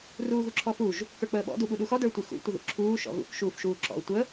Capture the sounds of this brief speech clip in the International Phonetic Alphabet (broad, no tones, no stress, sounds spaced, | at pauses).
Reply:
r uː ɣ u ǁʰ ɔ f u ʒ | k ə˞ k͡p əː ɓ ɔ̰ d u ɓ u ɗ u x ɔ d ə˞ tʷ ɨ x ṵ tʷ ə ð ṵ ǁʰ uː ʃ ɔ̰ ɣ ṵ k ʃ uː f ʃ uː ǁ ɔ̰ ʊ̯ tʷ ə